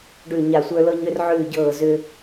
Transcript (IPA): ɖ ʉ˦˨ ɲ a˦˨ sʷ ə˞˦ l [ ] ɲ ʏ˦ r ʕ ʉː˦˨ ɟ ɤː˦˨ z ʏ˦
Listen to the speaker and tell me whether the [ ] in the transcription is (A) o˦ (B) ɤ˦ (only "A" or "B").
B